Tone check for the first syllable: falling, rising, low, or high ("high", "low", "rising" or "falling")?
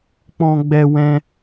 high